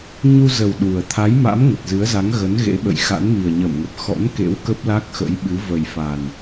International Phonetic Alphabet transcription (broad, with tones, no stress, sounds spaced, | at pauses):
ɲ u˧ z ə˨˩ w ɗ u˨˩ ə̯ t̪ʰ a˨˦ j m a̰˧˥ m ŋ ə˨˩ t̚ z ɨ˨˦ ə̯ z a˨˦ ŋ ɣ ə˨˦ n ɣ ḛ˧˥ ɓ ə̰˧˨ j x a̰˧˥ n m i˨˩ ə̯ ɲ ə˧˩ m ŋ ə˨˩ p̚ x ɔ̰˧˥ n k ḛ˧˥ w k ə˦˥ p̚ l a˦˥ k̚ x ə̰˧˥ j ɓ ɨ˨˦ v ə˨˩ j f a˨˩ n